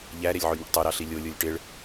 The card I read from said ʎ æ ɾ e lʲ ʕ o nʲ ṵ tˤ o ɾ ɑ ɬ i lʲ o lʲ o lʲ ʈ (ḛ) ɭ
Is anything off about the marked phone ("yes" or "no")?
yes